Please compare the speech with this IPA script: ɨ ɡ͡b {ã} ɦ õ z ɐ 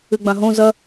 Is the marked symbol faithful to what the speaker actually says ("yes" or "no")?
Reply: yes